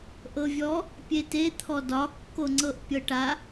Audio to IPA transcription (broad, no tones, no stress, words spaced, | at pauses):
ʔɤvʲɔ | pʲetet̪ʰɔ dɒkːoŋ͡ǀɤʔ pʲɤʈa